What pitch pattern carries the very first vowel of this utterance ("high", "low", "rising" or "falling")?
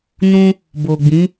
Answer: high